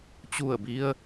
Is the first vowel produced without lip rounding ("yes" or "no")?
no